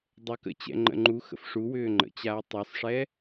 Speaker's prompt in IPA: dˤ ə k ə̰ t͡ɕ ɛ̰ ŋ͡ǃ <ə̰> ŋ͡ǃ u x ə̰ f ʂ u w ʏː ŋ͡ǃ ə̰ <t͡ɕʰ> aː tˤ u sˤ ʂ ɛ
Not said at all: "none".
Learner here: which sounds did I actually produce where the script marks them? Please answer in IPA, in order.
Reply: ə̰, t͡ɕ

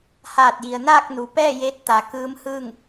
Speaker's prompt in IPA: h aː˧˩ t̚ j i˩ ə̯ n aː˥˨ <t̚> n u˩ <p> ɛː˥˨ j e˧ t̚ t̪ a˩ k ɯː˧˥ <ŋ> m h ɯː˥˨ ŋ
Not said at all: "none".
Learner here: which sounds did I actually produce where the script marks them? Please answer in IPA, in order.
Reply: k̚, p, none

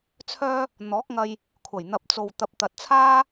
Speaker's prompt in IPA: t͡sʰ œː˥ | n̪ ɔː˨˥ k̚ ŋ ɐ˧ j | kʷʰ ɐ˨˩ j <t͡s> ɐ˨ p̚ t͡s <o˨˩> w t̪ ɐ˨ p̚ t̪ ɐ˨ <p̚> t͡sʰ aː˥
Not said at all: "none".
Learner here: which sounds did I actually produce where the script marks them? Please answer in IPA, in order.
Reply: n̪, o˨, t̚

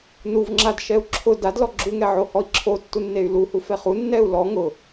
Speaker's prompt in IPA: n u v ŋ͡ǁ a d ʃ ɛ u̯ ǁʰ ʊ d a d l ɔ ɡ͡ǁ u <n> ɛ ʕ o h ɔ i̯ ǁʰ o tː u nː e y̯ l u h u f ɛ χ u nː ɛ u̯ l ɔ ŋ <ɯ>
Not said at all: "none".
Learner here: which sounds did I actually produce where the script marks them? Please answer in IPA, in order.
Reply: ŋ, ʊ

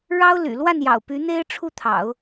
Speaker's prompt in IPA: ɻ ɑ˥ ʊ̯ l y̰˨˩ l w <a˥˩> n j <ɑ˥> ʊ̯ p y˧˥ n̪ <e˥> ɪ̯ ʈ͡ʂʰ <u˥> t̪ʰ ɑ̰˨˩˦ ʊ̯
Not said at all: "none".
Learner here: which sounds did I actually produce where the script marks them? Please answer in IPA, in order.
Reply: a˥˩, ɑ̰˨˩, e˥, u˥˩

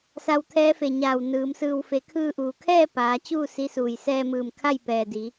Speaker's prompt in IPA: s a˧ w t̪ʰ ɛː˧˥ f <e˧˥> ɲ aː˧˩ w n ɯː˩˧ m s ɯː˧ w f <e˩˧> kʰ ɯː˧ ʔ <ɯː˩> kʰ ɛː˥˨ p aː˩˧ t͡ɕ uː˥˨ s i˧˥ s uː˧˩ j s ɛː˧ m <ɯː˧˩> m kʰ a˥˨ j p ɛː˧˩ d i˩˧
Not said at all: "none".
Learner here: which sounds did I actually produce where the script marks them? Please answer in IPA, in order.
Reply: e˧˩, e˩˧, uː˩, ɯː˧˩

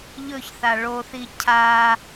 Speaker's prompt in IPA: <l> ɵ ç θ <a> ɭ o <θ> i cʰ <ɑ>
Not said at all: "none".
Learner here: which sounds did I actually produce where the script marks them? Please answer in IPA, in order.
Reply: ʎ, a, θ, a

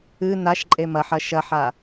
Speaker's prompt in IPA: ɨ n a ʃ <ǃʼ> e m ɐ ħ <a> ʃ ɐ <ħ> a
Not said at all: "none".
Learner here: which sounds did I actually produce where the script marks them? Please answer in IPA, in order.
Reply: ǃʼ, ɐ, ħ

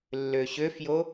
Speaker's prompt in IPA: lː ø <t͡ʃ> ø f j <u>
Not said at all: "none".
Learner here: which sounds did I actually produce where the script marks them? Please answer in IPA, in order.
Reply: ɕ, o

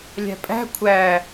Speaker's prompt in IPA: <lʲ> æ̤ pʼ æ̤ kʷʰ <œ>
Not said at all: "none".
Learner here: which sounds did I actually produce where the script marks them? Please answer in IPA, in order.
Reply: lʲ, æ

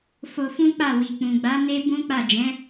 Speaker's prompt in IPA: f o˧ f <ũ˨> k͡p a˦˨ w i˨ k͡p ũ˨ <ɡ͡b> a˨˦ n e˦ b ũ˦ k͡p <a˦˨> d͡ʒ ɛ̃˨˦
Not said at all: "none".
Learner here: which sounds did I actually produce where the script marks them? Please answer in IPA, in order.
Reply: ũ˦, ɡ͡b, a˦˨

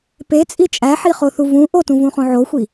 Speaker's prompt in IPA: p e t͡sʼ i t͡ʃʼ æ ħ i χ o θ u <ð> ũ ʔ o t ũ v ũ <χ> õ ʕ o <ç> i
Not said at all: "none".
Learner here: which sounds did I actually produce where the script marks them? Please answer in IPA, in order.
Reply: v, χ, xʷ

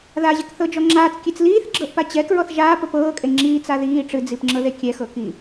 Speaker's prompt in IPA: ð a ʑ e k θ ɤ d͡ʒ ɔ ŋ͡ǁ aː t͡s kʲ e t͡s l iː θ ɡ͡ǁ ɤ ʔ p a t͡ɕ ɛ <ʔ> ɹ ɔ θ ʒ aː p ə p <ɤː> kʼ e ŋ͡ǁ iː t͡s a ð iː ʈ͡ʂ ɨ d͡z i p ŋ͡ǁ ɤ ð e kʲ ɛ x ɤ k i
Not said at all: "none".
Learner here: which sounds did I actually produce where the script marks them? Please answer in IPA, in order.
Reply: k, ɤː

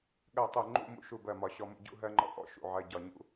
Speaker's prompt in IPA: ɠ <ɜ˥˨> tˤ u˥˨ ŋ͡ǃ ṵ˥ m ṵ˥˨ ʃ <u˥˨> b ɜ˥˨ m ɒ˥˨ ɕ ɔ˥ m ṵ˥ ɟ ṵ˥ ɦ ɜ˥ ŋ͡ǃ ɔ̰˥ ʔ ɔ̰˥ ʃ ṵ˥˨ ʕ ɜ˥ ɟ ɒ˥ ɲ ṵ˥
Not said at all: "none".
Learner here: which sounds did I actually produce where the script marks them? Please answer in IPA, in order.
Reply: ɜ˥˨, u˥˨

